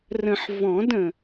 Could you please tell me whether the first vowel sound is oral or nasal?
nasal